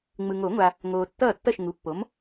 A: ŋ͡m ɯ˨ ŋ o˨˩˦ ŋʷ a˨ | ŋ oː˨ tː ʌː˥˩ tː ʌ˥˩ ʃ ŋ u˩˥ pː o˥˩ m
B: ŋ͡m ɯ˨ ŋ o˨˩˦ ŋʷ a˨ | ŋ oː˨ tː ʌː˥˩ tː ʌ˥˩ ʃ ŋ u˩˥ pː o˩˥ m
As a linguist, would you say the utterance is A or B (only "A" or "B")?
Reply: B